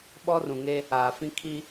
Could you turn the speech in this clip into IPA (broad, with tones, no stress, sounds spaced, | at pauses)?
ɓ ɔ˦ r ũ˨ ŋ e˦ | aː˨ f ĩ˦ kʰ i˦